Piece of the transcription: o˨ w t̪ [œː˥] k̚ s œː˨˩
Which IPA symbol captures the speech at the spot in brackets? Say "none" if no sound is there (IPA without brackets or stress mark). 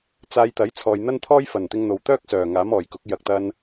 œː˥